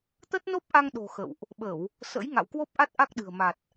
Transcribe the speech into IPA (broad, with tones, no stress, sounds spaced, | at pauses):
t̪ ə˦˥ t̚ n o˦˥ p̚ ʔ a˧ ŋ ɗ o̤˨˩ x ə̰˧˨ w ʔ | ɓ ə˧˩˨ w | s ə̰˧˥ j ŋ a̰˧˨ w k w o˦˥ p̚ ʔ a˦˥ t̚ ʔ a˦˥ k̚ ɗ ɨ̤˨˩ ə̯ m a˨˩ t̚